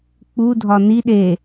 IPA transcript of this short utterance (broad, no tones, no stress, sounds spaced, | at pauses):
k͡p u dʱ ɒ n i ɗ e